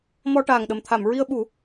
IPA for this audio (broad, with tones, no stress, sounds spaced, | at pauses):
m ɔ˧ ʈ aː˨˩ ŋ ɗ ə˨˩ m t̪ʰ a˨˩˨ m ɹ i˧ ə̯ ɓ u˨˩˦